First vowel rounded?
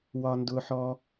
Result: yes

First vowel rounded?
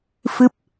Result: no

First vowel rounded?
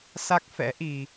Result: no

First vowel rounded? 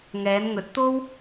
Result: no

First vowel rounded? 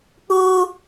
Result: yes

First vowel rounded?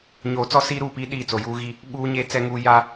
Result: yes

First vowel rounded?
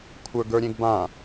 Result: no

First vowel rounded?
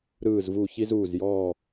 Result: no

